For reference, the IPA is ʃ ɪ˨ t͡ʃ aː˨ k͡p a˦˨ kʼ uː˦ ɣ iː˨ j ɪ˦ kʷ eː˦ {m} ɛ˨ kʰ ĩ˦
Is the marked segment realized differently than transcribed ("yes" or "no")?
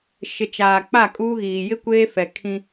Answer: yes